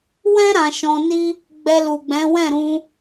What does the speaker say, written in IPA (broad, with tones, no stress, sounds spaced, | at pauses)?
w ɛ̃˦ ɾ ã˧ ʃ ɔ̃˧ n i˦ | ɡ͡b ɛ˧ l u˨ ɡ͡b ɛ̃˨˦ w ɛ̃˦˨ ɾ ũ˧